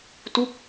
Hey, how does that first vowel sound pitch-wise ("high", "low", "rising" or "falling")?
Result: falling